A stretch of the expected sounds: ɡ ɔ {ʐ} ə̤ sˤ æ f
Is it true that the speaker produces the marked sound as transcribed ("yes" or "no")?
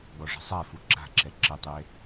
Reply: yes